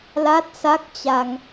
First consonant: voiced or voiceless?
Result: voiced